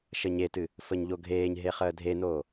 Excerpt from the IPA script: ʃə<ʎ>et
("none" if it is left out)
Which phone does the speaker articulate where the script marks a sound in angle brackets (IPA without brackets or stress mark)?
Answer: ɲ